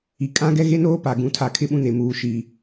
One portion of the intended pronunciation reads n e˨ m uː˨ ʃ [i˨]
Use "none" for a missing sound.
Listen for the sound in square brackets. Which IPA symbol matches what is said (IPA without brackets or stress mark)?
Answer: iː˨